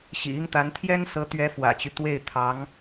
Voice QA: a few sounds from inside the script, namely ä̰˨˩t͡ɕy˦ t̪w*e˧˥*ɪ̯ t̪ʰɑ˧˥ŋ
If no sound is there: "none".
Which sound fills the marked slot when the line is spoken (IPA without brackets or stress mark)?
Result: e˥˩